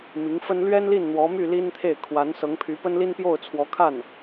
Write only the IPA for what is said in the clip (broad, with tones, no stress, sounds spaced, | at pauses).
m i˧˥ ŋ f ə˥ n l ɥ ɛ˥ n l i˥˩ n n̪ w ɔ˧˥ m y˥˩ l i˥ n t̪ʰ e˥˩ ɪ̯ kʰ w a˧˥ n s ɤ˧˥ ŋ pʰ y˧˥ p ə˥ n l i˥ n p j o˥˩ ʊ̯ t͡sʰ w ɔ˧˥ kʰ a˥˩ n